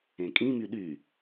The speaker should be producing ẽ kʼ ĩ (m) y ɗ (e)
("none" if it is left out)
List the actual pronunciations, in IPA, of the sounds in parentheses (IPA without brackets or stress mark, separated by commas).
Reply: m, y